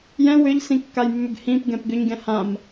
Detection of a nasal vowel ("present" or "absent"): present